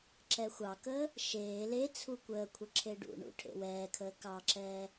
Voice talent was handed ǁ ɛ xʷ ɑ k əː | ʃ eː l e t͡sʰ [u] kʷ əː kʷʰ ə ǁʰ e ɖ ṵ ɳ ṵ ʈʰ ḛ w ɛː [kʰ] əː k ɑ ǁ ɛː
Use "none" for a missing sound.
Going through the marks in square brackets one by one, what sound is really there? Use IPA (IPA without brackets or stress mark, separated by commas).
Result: u, kʰ